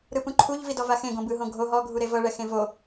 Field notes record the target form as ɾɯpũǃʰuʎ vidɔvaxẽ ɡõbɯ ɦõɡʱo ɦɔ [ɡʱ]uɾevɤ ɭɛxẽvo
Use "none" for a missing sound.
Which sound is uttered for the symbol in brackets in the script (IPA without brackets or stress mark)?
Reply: ɡʱ